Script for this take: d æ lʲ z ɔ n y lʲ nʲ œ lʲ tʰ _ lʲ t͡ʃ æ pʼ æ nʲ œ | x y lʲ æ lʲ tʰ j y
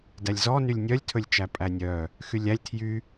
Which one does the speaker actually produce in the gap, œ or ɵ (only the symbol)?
ɵ